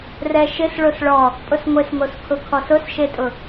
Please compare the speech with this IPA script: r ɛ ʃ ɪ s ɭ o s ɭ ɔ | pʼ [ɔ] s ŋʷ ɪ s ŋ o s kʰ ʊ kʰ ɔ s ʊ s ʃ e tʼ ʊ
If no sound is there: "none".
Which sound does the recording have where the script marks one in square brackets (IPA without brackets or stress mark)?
ʊ